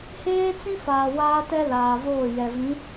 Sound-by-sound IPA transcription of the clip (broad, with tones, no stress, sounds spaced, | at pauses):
h eː˦ t͡s ĩ˦ f aː˨ w aː˦ t ɛ˦ l aː˨ v oː˦˨ j ɛ˨ v ĩ˨˦